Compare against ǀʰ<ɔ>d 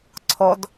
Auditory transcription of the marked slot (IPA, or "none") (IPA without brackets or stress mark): ɔ